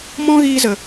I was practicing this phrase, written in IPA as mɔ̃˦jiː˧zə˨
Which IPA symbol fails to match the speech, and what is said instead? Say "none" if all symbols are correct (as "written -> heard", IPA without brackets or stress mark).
j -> ɣ